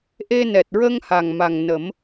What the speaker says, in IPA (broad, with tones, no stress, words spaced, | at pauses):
ʔe˧nɛ˨˩t̚ɹə˧ŋ ha˨˩ŋma˨˩ŋnə˨˩˦m